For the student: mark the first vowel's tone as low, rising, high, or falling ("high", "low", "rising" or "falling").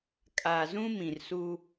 low